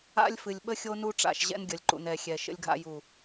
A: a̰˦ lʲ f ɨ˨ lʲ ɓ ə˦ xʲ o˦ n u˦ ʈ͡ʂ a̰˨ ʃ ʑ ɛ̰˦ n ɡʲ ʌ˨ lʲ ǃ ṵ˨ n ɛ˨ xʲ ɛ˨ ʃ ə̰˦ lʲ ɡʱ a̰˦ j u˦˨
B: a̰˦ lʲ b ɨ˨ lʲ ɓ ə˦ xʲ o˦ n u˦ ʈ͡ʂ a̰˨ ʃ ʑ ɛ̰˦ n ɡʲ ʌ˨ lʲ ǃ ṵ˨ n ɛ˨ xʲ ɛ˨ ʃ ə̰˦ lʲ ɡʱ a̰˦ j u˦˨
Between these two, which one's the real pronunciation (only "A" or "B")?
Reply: A